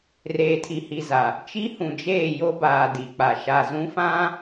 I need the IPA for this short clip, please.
r eː˨ tʰ i˨ h i˨ z a˨ | t͡ʃ i˦ h ũ˨ d͡ʒ eː˦˨ j o˦ b aː˨ d i˨ k͡p a˨ ʃ a˨ z ũ˦ f ã˦

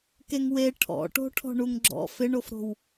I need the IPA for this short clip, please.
k e ŋ w e ʈʰ ɔ̰ ʈ o̤ ʈʰ ɔ̤ ɳ u ŋ ɡ͡ǁ ɔ̰ f ɪ ɳ o f ɾ o̤ w

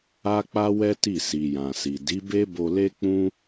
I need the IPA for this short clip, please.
a˦ k͡p a˦ w ɛ˦ t i˦˨ s i˨ j ã˨ s i˨ d i˨˦ b e˦ b o˧ l e˦ k͡p ũ˦

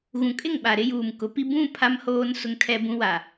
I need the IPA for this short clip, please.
ɣ ũ˨ kʼ ɪ˦˨ ŋ ɓ a˨ ɾ ɪ˦ j uː˨ m k ʊ˨˦ p i˦ b ũ˦˨ pʰ a˦ m h oː˦ n s ʊ˦ ŋ tʰ ɛ˦ b ũ˦ w a˨

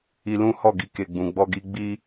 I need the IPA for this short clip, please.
i˧ l ũ˦ h ɔ˦˨ ɡ i˧ k e˨ ɡ͡b ũ˨ ɡ͡b ɔ˧ ɡ i˧ ɡ͡b i˧

